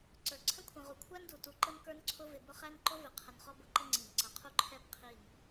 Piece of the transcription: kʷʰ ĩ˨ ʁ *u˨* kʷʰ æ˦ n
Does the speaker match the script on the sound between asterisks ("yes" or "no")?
yes